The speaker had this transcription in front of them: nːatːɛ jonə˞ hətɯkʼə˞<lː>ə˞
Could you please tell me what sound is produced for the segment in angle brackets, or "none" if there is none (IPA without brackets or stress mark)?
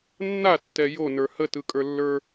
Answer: lː